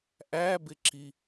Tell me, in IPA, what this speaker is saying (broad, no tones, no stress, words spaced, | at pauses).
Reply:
ʔæbɪǁi